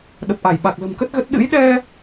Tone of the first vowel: low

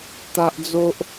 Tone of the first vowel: high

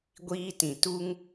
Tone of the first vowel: high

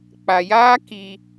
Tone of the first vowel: low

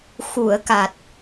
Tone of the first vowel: low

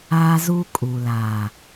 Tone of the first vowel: high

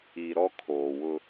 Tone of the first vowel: low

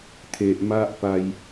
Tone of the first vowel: low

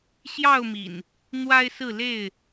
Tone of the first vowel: falling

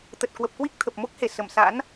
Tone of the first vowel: low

